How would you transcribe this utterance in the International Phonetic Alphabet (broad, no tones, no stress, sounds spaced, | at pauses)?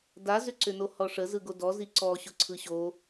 d a z ʏ ǀ ʏ n o h ɔ ʂ ə z ɯ ɡ o d ɔ z i ǀ ɔ ɕ ʊ ǀʰ ɯ ɕ o